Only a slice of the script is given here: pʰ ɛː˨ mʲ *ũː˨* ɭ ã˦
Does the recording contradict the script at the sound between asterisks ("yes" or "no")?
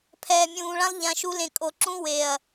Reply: no